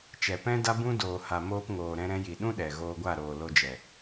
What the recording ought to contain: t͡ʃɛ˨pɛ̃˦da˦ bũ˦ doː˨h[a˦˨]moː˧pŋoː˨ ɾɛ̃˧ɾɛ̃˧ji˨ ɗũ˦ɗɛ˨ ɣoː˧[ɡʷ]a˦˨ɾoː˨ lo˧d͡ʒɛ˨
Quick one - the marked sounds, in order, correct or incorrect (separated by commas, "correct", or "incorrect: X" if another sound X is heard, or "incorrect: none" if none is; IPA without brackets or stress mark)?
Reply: incorrect: a˨, correct